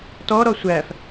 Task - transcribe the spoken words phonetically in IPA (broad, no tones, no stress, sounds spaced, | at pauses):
t ɔ ɾ ɔ sʷ æ f